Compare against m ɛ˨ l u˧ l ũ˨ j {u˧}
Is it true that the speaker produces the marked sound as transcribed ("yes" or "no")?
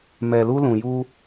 yes